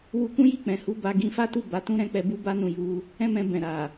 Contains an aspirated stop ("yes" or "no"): no